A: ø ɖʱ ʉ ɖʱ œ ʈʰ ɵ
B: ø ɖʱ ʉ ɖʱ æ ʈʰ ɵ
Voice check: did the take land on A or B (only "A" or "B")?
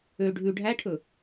B